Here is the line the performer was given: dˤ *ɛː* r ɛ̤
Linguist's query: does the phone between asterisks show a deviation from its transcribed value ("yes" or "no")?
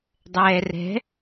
no